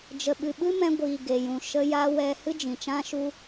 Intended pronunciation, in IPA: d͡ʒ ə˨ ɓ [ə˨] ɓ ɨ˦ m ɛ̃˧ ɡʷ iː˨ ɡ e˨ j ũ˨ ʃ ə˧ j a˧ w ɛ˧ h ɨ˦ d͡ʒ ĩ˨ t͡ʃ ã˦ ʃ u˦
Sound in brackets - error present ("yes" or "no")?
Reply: yes